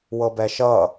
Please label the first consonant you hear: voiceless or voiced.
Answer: voiced